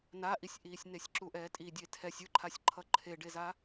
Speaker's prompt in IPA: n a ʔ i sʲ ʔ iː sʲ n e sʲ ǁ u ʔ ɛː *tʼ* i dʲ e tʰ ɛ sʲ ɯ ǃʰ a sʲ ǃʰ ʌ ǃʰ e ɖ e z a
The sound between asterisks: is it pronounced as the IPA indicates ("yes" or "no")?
yes